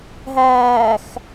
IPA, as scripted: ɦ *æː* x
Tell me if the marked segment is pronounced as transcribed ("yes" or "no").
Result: yes